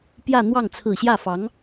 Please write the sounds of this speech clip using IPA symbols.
pjä˥˧n̪wɑ˥˩ŋ t͡sʰɹ̩˨˩ɕjä˥˩fɑ˧˥ŋ

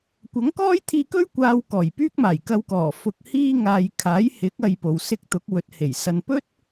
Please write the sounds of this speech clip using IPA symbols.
kʷɐ˨˥ŋkɔː˥jt̪ʰiː˧kɵ˥ɥ kʷaː˧w kɔː˨˩jpyː˥k̚maː˨˩j kɐ˧wkɔː˨˩ fʊ˨k̚ hiː˧ ŋaː˨jkʰaː˨˥jhɪ˨˥k̚ ɐ˧jpo˨w sɪ˧k̚t̪ʊ˨˥k̚ wɵ˨˥t̚he˨˩j sɐ˨npɵ˥t̚

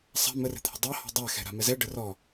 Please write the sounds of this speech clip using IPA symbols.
sˤa̤ mərɛ̤t̪ʰə̤ dˤɑhɔ̤ dˤaxɛ̤ɾa̤ mɛzɛ ɖərɔ

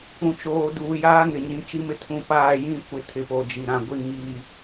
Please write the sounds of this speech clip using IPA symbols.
ũ˨t͡ʃoː˨ duː˨jaː˦ŋɪ˨ɲĩ˨˦ t͡ʃi˦mɪ˦ tʰũ˨ paː˦˨jĩ˦ kʷɪ˦tʰɪ˨po˨d͡ʒi˨ ɾã˨ɡʷi˦˨ ŋiː˨

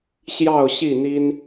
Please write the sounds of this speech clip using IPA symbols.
ɕjɑ˥˨ʊ̯ɕi˥˨n̪i˦n

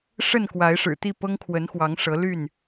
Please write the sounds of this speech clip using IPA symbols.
ʂə˥˨n kwa˨˦ɪ̯ ʂɻ̩˨˩t̪i˥˨ pɤ˦ŋkʰwə˨˦nxwɑ˨˦ŋ ʂɤ˨˦ly˥˨n

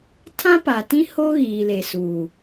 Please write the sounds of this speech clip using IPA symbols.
tʰã˦pa˨tĩ˦ ho˦ ɣiː˨le˨suː˨

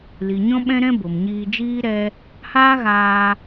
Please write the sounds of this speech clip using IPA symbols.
li˨ɲɔ̃˦ɓɛ̃˦ɾɛ̃˦ bo˨mɲiː˧d͡ʒiː˦ ɾɛ˦ | haː˦ɣaː˧

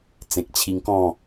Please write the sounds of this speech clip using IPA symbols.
t͡sẽ˨k̚t͡ɕʰi˧ŋkɔ̃˥˧

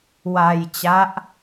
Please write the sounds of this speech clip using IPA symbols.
wa˧jt͡ɕa˦˥ʔ

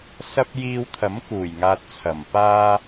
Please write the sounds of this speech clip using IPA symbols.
sɐ˥p̚ jiː˧wt̪ʰɐ˨˥mkuː˨˩jŋaː˨t̚ t͡sʰɐ˨˩mpaː˥

